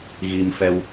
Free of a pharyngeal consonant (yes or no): yes